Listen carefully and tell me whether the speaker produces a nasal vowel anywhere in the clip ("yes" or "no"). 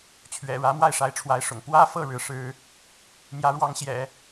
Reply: no